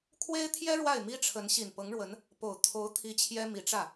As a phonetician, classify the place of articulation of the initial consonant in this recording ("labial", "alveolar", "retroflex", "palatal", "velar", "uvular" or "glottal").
velar